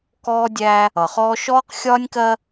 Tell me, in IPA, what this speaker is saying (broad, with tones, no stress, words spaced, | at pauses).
kɔː˦dʲæ˦ | ʌ˨χɔː˦ ʃɔː˦qxʲɒː˦nʲkɜ˦